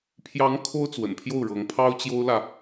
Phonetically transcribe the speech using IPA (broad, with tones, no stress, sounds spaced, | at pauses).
pʰ j ɑ˧˥ ŋ kʰ o˥ ʊ̯ t͡s w ə̰˨˩ n pʰ j o˥˩ ʊ̯ ɻ ɤ˧˥ ŋ pʰ ɑ˥ ʊ̯ t͡ɕ j o˥ ʊ̯ l ä˨